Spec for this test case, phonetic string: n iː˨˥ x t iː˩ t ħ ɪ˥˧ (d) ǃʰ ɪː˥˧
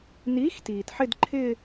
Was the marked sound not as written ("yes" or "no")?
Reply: no